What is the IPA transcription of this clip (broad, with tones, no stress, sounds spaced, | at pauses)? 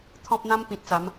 t̪ʰ ɔ̃˦ p̚ n̪ ã˦ m p ĩ˨ t̚ t͡s a˨˦ m